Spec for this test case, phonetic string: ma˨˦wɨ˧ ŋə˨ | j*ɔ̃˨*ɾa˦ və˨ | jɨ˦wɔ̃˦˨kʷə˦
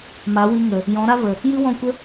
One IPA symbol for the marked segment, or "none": ɔ̃˨˦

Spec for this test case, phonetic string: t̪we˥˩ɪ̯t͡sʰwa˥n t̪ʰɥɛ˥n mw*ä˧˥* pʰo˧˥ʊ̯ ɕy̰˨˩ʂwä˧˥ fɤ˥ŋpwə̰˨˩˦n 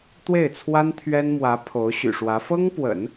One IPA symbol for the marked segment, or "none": ä˧˥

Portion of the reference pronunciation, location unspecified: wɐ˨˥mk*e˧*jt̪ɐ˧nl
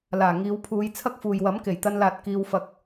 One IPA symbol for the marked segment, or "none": e˨˩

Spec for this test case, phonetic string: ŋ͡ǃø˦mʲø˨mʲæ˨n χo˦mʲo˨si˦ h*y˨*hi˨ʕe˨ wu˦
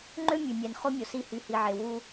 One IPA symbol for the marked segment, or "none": y˨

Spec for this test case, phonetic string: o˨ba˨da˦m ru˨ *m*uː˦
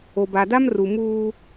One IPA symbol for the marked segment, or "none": m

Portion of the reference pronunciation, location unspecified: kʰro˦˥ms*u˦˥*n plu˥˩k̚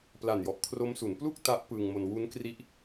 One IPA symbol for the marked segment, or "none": u˩˦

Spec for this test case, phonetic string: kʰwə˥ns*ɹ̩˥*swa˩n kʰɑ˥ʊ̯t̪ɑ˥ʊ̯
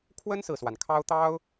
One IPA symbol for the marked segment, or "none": ɹ̩˨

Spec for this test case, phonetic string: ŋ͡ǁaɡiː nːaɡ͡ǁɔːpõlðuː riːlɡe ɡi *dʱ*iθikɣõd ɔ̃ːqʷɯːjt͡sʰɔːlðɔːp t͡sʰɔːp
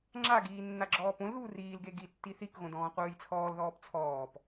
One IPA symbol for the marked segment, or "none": tː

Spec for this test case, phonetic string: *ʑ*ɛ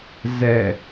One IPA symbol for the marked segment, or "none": z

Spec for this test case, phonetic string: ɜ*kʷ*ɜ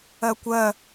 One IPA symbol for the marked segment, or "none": kʷ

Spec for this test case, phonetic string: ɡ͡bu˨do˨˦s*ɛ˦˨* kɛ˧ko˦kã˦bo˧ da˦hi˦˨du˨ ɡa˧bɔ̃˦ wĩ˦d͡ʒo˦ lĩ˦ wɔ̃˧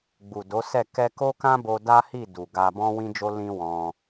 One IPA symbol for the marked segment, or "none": ɛ˦˨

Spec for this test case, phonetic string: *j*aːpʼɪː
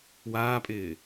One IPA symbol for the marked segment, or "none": w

